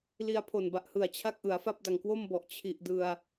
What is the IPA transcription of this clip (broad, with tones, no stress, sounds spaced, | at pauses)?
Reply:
l i˧ a̯ pʰ o˨˩ n b a˨˩ ʔ h ɯ˨˩ a̯ t͡ɕʰ a˥˩ k̚ ʔ ɯ˩˦ a̯ f a˥˩ p̚ d a˨˩ ŋ k w o˥˩ m b ɔ˨˩ ʔ t͡ɕʰ i˨˩ ʔ d ɯ˧ a̯